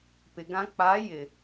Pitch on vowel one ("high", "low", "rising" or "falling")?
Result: low